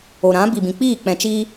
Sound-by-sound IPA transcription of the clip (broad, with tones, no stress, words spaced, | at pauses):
o˨ɾã˨˦bi˨bĩ˨ k͡piː˦˨k͡pɛ̃˨ t͡ʃiː˦